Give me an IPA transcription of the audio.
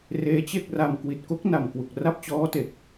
r eː˦˥ t͡ɕ e˥˩ k̚ r a˧ m k w i˨˩ t̚ k o˦˥ k̚ n a˨˩ m k w u˨˩ k̚ r a˥˩ p̚ t͡ɕ ɔː˦˥ t e˨˩ k̚

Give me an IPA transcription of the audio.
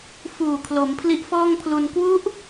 f uː˨˩ kʰ l o˩˦ m pʰ l i˦˥ ʔ f ɔː˥˩ ŋ pʰ l u˧ n k w u˦˥ ʔ

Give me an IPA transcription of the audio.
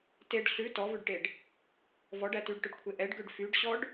t e ɖ ɬ ʉ t ɔ v ʉ ɖ ʈ e ɖ | v ɔ ɖ æ t y ɖ ʈ ɵ ɖ kʷʰ e ʔ ɛ ɖ ɡ ø ɖ f y ɖ ɕ ɔ ɖ

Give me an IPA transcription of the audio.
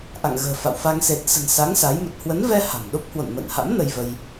ʔ a̰˧˨ ŋ ɣ ə̤ː˨˩ f a̰˧˨ w f a˧ ŋ s e˨˩ t̚ s ə̤˨˩ n s a˨˦ ŋ s a˨˦ j m ə˨˩ t̚ h w ə˨˦ n v ɛ˧ h a̤˨˩ m ɗ o˦˥ p̚ h w o̰˧˨ n m ə̰ː˧˨ n h a̰˧˥ m n ə˧ j v ə˧ j

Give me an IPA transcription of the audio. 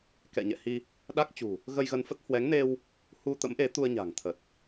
k ɛ̰˧˨ ɲ ɛ̰˧˨ h i˧ | ɗ a˦˥ k̚ t͡ɕ ṳ˨˩ | ɣ ə˧ j ɣ ə˧ n f ə˦˥ t̚ h w ɛ˨˦ ŋ n e˧ w | h u˧ t̪ ə̰˧˥ m ʔ e˨˦ t̪ u˧ ə̯ ɲ a̤˨˩ ŋ t̪ʰ ə˨˩ t̚

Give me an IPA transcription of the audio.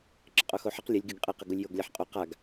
ǁ ə qʼ o x o ħ ə q lʲ ə lʲ ɡ y ɡ qʼ e q ə ɡ u lʲ j o ɡ lʲ a ħ qʼ o q a ɡ

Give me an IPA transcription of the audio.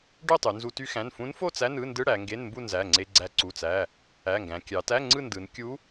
ɖ ø˥˧ tˤ y˩˧ n z u˧ t y˧ x æ̃˩˧˩ n f ũ˧˥ n f o˥˧ t͡s æ˧˥˧ n ɯ˧˥˧ n d ɯ˧˥˧ ɽ æ˩˧ ŋ ɡ e˧˥˧ n m b u˥˧ n z æ˩˧˩ ŋ͡ǀ e˧ ɡ͡ǀ æ˧ ǀ u˩˧˩ t͡s æ˩˧˩ | æ˩˧˩ ŋ ɡ æ̃˩˧ kʲ ɑ˩˧ t æ˧˥˧ ŋ͡ǀ ɯ˥˧ n d ɯ˩˧ n kʲ u˧˥

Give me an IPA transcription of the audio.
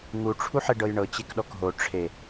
ŋ u ʈ͡ʂʰ u ħ e ɖ ɤ j ɳ ɤ t͡ɕ e k ɗ ɔ k ɦ o ʈ͡ʂʰ e

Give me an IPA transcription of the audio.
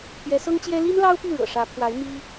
pʰ j ɛ˧˥ s ɤ˥ ŋ t͡ɕ j ɛ˥ l i˥ n l ɑ˥ ʊ̯ p y˥˩ ɻ ɤ̰˨˩ ʂ ä˧˥ pʰ w a˧˥ ɪ̯ m i˥

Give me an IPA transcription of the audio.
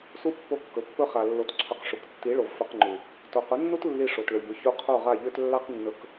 s u˧ pː o˧ kː ɵ˨ pː ɵ˦ χ a˨ lː o˧ t ǀʰ ɵ˧ q ʂ u˨ k tː i˨˦ ɭ o˨ v f ɵ˧ q ŋ͡ǃ u˨ | t o˨ q ʊ˨˦ nː u˦ t lː i˧ ʂ o˨ t ɭ ø˨ ʎ ʊ˨˦ ç u˧ qʰ o˦˨ ʁ a˦˨ ʎ ø˦ t lː a˦ q nː ɵ˧ k

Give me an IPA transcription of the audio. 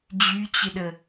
d͡ʑ y t͡ɕ ɪ ɗ ə

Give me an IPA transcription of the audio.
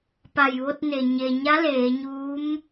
p a˧˩ j ʋ o˧ t̚ n e˩ ɲ e˩ ɲ a˧˥ l eː˩˧ ɲ uː˧˥ m

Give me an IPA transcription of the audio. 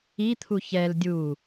i t̪ʰ u ç ɛ l dʲ u

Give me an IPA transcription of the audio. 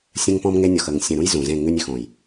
sʲ ə̃˦ ŋ p ɔ̃˦ m ŋ e˦ nʲ ɔ˨ x ə˨ ŋ sʲ ə̃˨ ɾ ũ˦ j z ũ˨ z ẽ˦˨ ŋ ʉ˦ nʲ ʉ˨ x õ˨ j

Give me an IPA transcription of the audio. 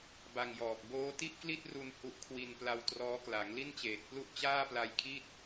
b a˧ ŋ j ɔː˨˩ k̚ b oː˦˥ t i˥˩ ʔ k l i˥˩ t̚ r u˧ n h u˦˥ ʔ kʰ w i˧ n p l a˧ w t r ɔː˦˥ k l a˩˦ ŋ l i˥˩ n t͡ɕ eː˨˩ t̚ p l u˥˩ ʔ t͡ɕ aː˥˩ p l a˧ j kʰ i˥˩ t̚

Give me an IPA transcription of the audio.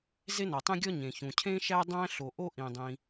z e˥ n ɒ˩ tˤ ẽ˥ ɡʲ ɒ˥ ɲ ẽ˩ ç ũ˩ cʰ ẽ˥ ʃ æ˥ dˤ æ̃˥ ɬ o˩ ʔ o˥ ʔ ĩ˩ dˤ ĩ˩

